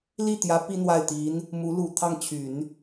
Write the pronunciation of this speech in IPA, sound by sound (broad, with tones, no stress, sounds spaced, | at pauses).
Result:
l i˥˩ t̪ j ä˧˥ p i˥ n̪ w a˥˩ ɪ̯ t̪ i˧˥ n | m u˧˥ l u˨˩ t̪ʰ ɑ˥˩ ŋ t͡ɕʰ y˨˩˦ n